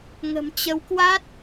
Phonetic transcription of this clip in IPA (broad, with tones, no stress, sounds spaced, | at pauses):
ŋ ə̤˨˩ m t͡ɕ ə˨˦ w k w a˦˥ t̚